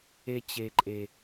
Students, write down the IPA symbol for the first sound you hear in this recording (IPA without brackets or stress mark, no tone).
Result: e